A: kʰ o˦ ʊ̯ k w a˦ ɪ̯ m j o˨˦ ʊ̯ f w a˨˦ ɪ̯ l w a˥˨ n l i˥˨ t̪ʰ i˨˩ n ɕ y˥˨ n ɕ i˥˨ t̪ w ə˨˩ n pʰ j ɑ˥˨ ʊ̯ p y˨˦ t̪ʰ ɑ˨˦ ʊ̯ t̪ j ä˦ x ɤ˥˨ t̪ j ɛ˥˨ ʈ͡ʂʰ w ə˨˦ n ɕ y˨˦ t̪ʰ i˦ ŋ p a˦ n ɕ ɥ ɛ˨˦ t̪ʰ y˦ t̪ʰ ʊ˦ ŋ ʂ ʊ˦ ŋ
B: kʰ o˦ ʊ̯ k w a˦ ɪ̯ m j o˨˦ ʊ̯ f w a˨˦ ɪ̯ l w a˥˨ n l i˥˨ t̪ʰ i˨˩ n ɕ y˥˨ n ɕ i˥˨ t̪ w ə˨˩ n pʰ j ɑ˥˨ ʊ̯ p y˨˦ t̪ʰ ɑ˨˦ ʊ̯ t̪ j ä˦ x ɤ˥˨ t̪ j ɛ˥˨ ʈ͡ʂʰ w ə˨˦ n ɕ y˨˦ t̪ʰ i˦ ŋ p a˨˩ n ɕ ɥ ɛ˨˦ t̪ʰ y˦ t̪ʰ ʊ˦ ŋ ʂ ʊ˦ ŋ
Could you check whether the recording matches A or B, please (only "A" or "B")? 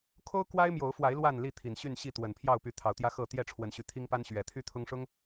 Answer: A